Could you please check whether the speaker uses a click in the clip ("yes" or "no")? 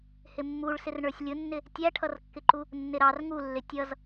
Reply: yes